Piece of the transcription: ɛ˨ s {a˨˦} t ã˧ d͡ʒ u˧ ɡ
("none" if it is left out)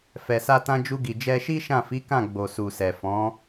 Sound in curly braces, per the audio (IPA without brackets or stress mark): a˧